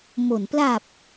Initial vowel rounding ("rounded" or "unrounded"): rounded